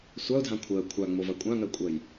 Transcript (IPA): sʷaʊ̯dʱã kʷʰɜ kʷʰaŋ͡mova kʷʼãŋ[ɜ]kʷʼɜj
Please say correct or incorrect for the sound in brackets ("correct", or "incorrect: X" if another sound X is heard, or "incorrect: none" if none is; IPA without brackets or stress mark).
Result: correct